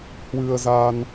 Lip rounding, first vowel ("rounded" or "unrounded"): unrounded